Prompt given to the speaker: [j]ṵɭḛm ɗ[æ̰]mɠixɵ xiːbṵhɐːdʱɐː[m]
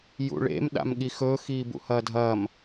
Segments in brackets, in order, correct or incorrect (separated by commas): correct, incorrect, correct